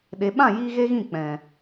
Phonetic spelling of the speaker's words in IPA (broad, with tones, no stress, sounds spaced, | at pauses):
ɗ e˨ ɓ ã˦˨ j iː˧ ɣ e˦ ɣ ĩ˦˨ k͡p ɛ̃˨